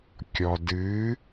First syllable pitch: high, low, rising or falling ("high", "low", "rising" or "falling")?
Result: low